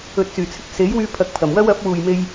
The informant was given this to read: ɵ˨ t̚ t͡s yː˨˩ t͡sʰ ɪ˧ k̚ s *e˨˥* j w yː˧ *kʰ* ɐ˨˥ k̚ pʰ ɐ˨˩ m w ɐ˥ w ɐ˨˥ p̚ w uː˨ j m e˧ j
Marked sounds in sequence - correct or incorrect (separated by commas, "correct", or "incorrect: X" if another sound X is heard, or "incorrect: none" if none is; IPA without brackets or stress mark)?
correct, incorrect: pʰ